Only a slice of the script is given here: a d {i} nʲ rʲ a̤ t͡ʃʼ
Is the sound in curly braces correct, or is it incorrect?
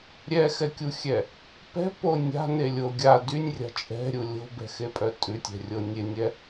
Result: incorrect